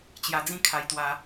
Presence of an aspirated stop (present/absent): present